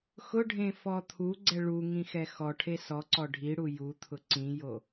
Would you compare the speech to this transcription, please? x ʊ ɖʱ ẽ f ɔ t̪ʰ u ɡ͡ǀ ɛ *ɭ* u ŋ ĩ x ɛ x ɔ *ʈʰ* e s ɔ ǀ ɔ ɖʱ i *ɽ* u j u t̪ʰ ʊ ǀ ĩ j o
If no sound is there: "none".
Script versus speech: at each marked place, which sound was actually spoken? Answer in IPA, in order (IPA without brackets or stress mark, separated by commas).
ɭ, ʈʰ, ɽ